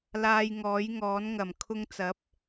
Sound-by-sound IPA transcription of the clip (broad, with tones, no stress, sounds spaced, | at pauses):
l aː˧ j ŋ ɔː˨˥ j ŋ ɔː˨˥ n ŋ ɐ˨˩ m kʰ ʊ˧ ŋ t͡s ɐ˨˥ p̚